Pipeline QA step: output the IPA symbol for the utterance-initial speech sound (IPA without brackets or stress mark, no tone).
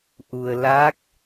ʔ